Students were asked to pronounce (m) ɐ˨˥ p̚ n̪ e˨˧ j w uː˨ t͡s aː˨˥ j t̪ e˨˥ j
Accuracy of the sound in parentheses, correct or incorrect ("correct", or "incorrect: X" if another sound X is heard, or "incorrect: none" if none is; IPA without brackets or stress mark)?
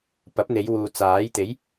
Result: incorrect: p